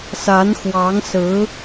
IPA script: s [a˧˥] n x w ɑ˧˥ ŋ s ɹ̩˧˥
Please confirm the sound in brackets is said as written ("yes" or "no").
yes